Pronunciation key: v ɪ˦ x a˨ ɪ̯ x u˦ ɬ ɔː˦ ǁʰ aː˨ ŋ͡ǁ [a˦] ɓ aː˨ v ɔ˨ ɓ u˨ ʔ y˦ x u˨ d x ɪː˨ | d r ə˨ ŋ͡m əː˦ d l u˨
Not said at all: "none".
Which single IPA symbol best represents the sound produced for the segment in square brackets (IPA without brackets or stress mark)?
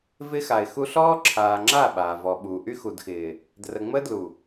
a˦˨